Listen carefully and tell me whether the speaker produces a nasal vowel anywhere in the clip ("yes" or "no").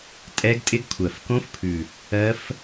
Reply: yes